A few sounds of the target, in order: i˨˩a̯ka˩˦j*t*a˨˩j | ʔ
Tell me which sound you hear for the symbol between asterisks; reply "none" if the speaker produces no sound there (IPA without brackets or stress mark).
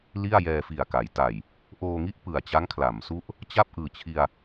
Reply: t